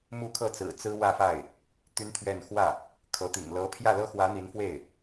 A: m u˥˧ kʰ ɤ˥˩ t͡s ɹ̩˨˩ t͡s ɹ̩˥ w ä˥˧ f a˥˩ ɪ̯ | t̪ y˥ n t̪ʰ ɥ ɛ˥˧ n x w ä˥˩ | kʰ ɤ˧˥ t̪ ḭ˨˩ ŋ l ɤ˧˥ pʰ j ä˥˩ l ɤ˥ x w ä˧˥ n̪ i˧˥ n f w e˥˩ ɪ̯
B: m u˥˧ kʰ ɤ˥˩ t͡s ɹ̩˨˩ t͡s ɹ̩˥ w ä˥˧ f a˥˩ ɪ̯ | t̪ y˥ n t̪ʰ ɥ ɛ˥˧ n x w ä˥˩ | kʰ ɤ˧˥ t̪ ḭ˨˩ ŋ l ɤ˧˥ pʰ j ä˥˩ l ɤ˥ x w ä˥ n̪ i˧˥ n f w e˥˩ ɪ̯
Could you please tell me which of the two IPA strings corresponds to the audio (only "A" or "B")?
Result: A